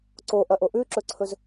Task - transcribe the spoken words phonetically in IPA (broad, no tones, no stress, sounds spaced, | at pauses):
ǀ o ʔ ɐ ʔ o ʔ ʉ ǁ ɵ ǀʰ ɵ z